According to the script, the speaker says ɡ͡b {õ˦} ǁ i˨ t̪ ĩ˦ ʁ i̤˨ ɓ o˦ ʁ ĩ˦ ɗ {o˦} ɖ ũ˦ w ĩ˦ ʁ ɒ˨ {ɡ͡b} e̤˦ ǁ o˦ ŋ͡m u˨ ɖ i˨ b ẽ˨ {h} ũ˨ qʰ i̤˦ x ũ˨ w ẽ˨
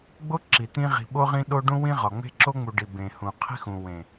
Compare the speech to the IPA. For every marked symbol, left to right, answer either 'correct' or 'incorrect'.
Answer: incorrect, correct, incorrect, correct

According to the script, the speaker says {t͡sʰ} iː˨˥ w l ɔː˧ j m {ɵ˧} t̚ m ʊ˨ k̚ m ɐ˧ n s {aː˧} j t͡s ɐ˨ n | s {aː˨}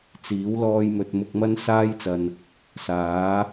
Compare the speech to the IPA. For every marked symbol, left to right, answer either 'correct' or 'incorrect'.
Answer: incorrect, incorrect, correct, incorrect

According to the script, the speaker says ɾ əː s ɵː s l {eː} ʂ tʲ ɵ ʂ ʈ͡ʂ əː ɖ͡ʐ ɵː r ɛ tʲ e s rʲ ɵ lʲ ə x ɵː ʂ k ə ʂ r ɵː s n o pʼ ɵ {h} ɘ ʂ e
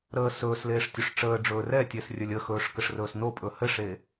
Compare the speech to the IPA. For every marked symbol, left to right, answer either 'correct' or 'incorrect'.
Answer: correct, correct

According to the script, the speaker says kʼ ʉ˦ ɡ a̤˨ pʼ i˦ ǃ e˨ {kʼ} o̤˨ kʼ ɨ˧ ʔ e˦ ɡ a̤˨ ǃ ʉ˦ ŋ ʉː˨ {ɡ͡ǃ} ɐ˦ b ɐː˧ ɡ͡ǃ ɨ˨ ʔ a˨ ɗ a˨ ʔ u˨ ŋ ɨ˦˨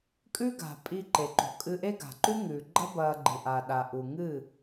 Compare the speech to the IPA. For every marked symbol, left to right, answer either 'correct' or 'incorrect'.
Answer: incorrect, correct

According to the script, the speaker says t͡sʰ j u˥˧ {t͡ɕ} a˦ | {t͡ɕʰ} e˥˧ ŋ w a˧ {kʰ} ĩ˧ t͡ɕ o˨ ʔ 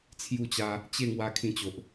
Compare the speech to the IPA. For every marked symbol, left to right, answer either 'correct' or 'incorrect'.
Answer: correct, incorrect, correct

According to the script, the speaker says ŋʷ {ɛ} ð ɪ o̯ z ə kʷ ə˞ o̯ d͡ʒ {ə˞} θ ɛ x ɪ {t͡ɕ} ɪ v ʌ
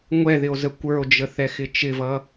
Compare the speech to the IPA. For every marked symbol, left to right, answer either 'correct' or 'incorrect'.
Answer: correct, incorrect, incorrect

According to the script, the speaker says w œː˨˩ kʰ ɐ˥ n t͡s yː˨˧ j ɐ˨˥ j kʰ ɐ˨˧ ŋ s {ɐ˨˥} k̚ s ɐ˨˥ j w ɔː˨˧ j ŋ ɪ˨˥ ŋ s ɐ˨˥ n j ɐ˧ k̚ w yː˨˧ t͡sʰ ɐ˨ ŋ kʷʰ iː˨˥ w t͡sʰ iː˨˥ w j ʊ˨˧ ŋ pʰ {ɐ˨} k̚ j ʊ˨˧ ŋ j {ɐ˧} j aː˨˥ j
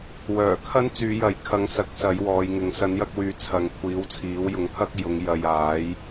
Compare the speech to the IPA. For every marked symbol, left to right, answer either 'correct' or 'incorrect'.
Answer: correct, incorrect, correct

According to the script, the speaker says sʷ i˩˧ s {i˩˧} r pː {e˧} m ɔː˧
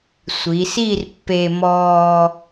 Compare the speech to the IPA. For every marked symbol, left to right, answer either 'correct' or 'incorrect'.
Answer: incorrect, correct

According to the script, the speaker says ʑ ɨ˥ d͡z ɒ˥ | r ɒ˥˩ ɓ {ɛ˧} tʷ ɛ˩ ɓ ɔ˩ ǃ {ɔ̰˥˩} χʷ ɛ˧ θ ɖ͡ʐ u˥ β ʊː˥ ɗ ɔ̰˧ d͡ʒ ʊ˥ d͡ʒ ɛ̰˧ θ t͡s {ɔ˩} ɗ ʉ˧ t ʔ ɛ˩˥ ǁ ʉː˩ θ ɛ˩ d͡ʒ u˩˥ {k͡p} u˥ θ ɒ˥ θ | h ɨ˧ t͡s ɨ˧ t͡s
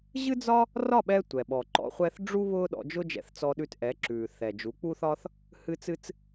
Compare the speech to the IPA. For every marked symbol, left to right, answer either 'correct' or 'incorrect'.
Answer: correct, incorrect, incorrect, correct

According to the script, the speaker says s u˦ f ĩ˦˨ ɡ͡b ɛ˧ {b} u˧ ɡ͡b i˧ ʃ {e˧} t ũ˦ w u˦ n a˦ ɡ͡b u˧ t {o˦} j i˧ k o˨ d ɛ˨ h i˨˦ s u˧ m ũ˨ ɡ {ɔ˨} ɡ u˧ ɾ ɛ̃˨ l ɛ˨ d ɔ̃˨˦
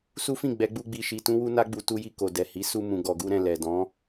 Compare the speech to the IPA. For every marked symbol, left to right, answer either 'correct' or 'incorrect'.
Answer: incorrect, incorrect, incorrect, correct

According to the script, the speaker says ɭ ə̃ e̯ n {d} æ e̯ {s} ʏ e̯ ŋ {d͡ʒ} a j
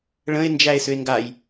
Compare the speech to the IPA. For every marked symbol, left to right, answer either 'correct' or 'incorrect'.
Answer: incorrect, correct, incorrect

